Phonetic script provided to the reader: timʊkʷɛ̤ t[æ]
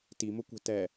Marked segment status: incorrect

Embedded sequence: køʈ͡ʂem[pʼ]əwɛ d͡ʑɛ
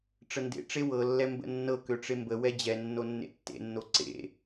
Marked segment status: incorrect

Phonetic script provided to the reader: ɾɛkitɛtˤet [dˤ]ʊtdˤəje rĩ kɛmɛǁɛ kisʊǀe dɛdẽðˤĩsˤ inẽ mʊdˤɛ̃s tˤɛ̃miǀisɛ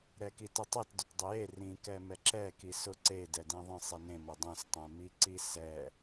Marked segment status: incorrect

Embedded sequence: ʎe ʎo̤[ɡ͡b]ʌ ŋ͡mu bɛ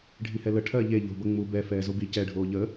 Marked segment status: incorrect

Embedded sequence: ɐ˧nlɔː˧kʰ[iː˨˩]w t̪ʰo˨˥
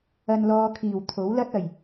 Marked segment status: correct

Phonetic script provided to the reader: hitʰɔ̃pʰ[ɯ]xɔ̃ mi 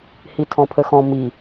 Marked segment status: incorrect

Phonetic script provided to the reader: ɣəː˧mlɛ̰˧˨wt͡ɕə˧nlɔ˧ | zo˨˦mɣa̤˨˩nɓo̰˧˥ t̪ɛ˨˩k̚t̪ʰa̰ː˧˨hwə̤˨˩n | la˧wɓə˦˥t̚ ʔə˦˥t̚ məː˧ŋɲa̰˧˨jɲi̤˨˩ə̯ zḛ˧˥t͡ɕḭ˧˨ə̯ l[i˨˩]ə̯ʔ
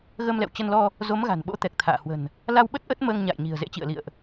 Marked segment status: incorrect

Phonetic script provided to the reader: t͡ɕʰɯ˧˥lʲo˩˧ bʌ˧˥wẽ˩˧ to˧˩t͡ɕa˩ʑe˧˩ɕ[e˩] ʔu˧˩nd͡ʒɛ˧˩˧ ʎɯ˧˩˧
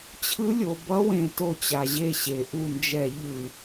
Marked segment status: correct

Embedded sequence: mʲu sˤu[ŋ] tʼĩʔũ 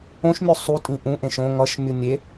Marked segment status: incorrect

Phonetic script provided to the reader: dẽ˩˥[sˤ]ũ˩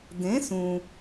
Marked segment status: incorrect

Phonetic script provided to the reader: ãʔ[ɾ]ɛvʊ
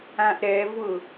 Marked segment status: correct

